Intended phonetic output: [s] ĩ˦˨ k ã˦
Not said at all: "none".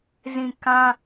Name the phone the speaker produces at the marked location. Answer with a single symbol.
z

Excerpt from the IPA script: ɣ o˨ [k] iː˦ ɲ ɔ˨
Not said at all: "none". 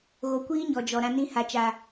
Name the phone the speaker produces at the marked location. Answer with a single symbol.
kʷ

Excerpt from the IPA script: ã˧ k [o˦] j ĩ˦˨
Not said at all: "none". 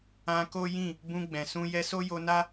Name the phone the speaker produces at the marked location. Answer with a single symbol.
o˦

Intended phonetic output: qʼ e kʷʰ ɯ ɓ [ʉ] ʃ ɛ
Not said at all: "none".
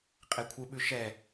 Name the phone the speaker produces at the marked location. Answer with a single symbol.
ʉ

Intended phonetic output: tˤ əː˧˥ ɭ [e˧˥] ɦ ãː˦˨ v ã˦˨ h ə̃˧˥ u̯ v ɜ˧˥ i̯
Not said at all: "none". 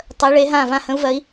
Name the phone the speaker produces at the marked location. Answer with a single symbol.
e˧˥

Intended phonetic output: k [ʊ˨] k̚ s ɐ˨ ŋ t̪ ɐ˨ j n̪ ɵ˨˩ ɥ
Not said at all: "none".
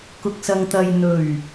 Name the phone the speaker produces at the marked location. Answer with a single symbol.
ʊ˨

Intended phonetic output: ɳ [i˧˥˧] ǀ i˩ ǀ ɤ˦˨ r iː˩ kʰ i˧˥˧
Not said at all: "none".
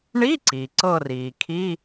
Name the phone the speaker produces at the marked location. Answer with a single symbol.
i˧˥˧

